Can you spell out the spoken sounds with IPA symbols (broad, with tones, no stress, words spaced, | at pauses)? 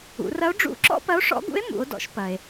ṵ˩˧rɐ˧˥o̯ ɖ͡ʐṵ˧˥ǁɔ̰˥ pɐ˧˥o̯ʂɔ̰˧˥ɡṵ˧˥e̯ mṵ˩˧o̯dɔ̰˩˧ʃ pɐ˩e̯